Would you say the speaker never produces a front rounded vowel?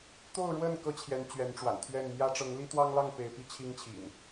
yes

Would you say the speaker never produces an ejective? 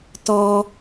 yes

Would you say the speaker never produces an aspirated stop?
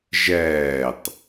yes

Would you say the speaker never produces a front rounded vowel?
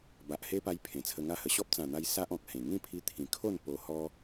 yes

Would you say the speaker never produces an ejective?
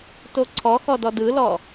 yes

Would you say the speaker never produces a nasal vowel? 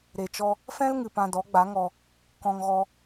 no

